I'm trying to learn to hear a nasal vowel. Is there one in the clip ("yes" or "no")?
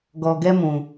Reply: yes